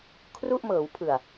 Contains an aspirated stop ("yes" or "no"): yes